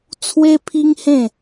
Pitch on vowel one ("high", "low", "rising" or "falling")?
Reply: high